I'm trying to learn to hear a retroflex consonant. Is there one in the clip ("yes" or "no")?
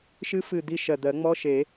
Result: no